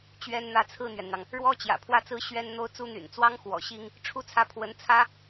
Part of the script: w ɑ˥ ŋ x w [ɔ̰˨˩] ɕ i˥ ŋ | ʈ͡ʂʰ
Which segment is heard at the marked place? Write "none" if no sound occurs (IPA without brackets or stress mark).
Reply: ɔ̰˨˩